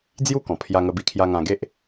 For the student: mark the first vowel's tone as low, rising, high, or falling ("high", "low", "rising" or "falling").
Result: high